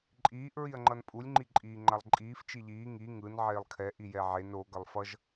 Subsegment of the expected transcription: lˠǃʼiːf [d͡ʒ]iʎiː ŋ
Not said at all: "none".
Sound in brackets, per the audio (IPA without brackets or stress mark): t͡ʃ